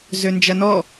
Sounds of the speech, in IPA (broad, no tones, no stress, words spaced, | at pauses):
zønd͡ʒɐnɔ